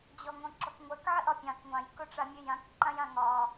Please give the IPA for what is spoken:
d͡ʑ ɔ ŋ õ ǁ ɔ k ŋʷ ɜ k ʕ ɘ ʔ ɒ pʲ ɑ̃ k ŋʷ ɑ̃ j k o ʈ͡ʂ a mʲ ɘ j ã k ǃ ã j ã ŋ ɒ

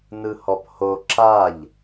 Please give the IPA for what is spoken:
n ɯ h ɔ p h o ǁ a ʎ

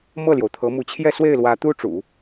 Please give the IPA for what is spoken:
m ɤ˥˩ l j o˩ ʊ̯ t̪ʰ ɤ˧˥ m u˧˥ t͡ɕʰ j ɛ˥˧ s w e˥˩ ɪ̯ l w ä˧˥ t̪ u˥ ʈ͡ʂ ṵ˨˩˦

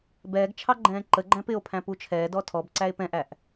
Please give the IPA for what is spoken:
b ɛː ɡ t͡ʃʰ ɑ ɡ͡ǃ ɛ̃ː ǃ ə ɡ͡ǃ æ̃ p ɪ o̯ pʰ æ̃ p u t͡ʃʰ ɛː d ɔ tʰ ɔ b ǀ æ e̯ p ɛ̃ ʔ æ ʔ

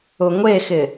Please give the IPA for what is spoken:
ʊ ŋʷ e x ɪ

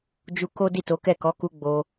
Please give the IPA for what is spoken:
d͡ʒ u˧ k o˦ d i˦˨ t o˨˦ k ɛ˦˨ k ɔ˨˦ k u˧ ɡ͡b o˧

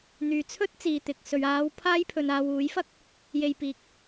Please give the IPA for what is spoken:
n̪ yː˨ t͡sʰ ɵ˥ t̚ t͡s iː˨ t̪ ɪ˨ k̚ s ɵ˨ ɥ aː˨˧ w pʰ aː˥ j pʰ ɵ˨ n aː˨ w uː˨˥ j f ɐ˥ k̚ | j e˧ j p iː˧ k̚

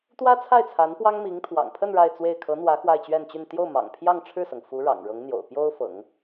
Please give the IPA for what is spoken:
t̪ w ä˥ t͡sʰ a˥˩ ɪ̯ t͡sʰ a˧˥ n p w ɑ˥ ŋ m i˧˥ ŋ t̪ʰ w ɑ̰˨˩ ŋ pʰ ə˥˧ n ɻ a˥˧ ɪ̯ t͡s w e˥˩ ɪ̯ kʰ ɤ˧˥ n̪ w ä˧˥ x w a˥˧ ɪ̯ t͡ɕ ɥ ɛ˥˧ n t͡ɕ y˥˧ n t̪ j o˥˩ ʊ̯ m ɑ̰˨˩ ŋ pʰ j ɑ˥˧ ŋ ʈ͡ʂʰ ɻ̩˥˩ s ɤ˩ ŋ f u˧˥ ɻ ɑ̰˨˩ ŋ ɻ ɤ˧˥ ŋ n̪ j o̰˨˩ ʊ̯ p j o˥ ʊ̯ f ɤ̰˨˩˦ ŋ

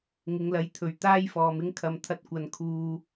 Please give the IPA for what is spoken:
ŋ ɪ˨˧ ŋ l ɐ˨˥ j t̪ʰ ɵ˨ ɥ t̪ aː˥ j f ɔː˨ m ɪ˥ ŋ kʰ ɐ˨ m t̪ʰ ɐ˧ t̚ kʷ ɐ˨ n kʰ uː˨

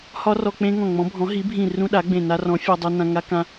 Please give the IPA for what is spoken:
h ɒ˦˥ r ɔ˧ k͡p ẽ˦˥ ŋ ɔ̃˧˩ ŋ͡m ɔ̃˨˥ bʱ ɔ̃˨˥ ɦ i˨˥ bʱ ĩ˧˩ r ũ˦˥ ɗ a˨˥ ɡ͡b ẽ˧˩ n a˧ r ɔ̃˨˥ fʲ a˧ dˤ u˧ n ã˧ ŋ a˦˥ k ã˧

